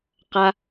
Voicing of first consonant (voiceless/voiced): voiceless